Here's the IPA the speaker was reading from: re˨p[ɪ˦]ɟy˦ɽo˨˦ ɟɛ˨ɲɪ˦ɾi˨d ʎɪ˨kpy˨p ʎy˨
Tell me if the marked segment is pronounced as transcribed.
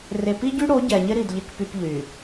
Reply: no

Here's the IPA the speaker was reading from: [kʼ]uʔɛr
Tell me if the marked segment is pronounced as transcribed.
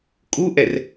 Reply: yes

